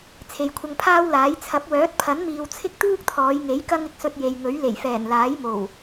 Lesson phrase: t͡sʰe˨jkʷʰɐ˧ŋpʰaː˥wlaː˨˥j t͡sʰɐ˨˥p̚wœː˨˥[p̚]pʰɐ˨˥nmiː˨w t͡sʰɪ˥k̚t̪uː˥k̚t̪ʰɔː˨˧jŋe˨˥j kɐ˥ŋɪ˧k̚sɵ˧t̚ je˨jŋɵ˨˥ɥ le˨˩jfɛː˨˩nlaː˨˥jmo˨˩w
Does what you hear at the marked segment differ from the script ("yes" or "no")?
yes